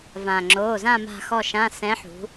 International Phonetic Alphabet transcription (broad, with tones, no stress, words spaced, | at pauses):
vãː˩ŋ͡ǁoː˩˧˩zã˦˨ ma̤˦˨xɔ˦˨ʃã˧˥˧ sɛ̃˨˥ħṳ˩˧